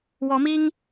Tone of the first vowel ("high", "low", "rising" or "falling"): rising